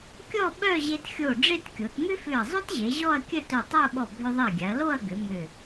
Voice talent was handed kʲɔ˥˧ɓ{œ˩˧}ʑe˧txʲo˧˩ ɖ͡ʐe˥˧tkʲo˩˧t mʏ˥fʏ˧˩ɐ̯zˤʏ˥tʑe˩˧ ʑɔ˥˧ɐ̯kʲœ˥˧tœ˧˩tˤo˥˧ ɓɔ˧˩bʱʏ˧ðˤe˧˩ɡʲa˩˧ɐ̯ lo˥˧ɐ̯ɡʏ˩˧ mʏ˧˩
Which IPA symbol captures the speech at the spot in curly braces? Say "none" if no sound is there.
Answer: œ˥˧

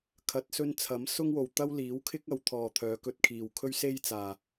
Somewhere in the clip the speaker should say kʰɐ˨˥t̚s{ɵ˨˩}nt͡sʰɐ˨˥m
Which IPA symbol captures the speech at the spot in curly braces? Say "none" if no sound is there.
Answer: ɵ˧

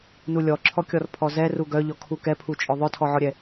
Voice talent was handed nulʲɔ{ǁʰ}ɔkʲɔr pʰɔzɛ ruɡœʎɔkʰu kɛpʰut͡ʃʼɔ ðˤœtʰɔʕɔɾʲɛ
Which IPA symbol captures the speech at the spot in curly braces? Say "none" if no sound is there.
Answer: ǁʰ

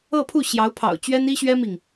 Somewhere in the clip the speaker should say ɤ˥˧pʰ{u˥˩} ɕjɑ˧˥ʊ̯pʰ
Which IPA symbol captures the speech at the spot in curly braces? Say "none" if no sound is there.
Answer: u˥˩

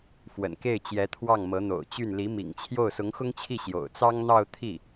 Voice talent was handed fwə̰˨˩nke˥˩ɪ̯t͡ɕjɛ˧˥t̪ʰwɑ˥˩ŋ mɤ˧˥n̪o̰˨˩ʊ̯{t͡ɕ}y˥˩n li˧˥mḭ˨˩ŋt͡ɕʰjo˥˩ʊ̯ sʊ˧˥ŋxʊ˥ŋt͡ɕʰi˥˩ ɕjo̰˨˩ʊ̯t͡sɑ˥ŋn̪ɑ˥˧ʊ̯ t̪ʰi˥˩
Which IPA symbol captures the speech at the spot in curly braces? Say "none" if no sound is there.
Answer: t͡ɕ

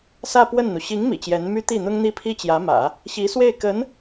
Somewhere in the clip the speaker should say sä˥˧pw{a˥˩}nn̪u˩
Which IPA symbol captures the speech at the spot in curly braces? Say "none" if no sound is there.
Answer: ə˥˩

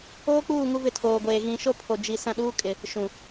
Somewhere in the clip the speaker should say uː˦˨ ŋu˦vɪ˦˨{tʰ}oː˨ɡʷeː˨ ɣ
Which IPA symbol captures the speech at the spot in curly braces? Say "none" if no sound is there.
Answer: tʰ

